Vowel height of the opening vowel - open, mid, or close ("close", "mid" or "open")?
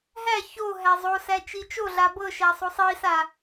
open